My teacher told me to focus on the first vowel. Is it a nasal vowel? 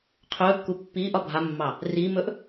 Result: no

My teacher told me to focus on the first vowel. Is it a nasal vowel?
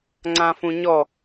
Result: yes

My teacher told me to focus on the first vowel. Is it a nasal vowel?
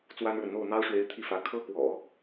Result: no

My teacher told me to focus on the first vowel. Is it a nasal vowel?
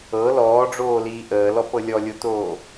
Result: no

